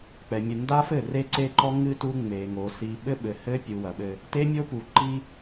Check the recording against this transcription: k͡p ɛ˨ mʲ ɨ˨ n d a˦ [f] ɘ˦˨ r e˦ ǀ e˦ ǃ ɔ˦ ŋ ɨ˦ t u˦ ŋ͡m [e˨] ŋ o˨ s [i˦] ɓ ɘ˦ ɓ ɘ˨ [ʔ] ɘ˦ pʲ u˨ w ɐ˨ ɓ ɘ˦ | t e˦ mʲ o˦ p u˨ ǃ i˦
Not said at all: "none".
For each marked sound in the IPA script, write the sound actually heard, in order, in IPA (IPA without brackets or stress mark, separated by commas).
f, e˨, i˨, h